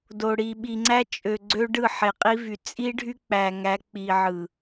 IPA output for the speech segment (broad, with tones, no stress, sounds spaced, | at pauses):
d o˨ ɽ i˨ ɓ i˨ ŋ͡ǀ æ˦ t͡ʃʼ ø˨ ɡ͡ǀ ø˦ ɖ ɯ˦˨ ħ e˨ qʼ i˦ v y˨ t͡sʼ i˦ ɖʱ y˦ k͡p æ˨ ŋ æ˨˦ k͡p i˨ ʕ ɯ˨